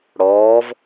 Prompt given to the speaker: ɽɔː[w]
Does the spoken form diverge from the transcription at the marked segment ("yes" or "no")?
yes